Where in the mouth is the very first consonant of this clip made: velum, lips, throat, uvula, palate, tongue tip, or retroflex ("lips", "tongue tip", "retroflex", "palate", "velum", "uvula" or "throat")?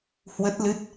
throat